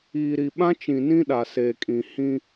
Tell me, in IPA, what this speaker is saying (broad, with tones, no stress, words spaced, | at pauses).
iː˨ɾi˨ɓã˦t͡ʃĩ˨ nĩ˦ɗa˨seː˨kʼĩ˨ hĩ˦